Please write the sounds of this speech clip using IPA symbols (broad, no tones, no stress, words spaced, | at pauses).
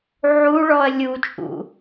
ʕuɭɔɐ̯ lʲut͡ʃʼṵ